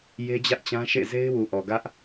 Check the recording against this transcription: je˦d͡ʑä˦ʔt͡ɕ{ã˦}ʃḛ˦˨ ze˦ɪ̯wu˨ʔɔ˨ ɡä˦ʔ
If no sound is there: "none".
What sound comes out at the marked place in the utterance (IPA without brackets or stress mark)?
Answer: ã˦